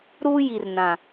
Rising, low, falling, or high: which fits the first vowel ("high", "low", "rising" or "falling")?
high